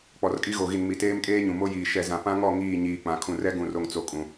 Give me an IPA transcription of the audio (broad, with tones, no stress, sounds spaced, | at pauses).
k͡p ɔ˨ r kʼ i˦ ɣ o˨ ɣ i˨ n m i˨ t eː˦ m kʼ eː˦ ɲ ũ˨ m o˦ j iː˨ ʃ ɛ˨ z ã˨ p ã˦ ŋ ɔ˦˨ ŋ iː˦˨ ɲ iː˨ k͡p ã˨ kʰ ũ˨ r ɛ˦ ɡ ũ˨ r o˨ ŋ t͡s o˨ kʼ ũ˨